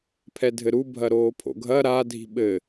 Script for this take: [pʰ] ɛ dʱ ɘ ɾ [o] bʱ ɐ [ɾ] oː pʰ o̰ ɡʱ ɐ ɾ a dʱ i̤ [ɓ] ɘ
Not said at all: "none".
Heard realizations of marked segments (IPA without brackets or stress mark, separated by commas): pʰ, u, ɾ, ɓ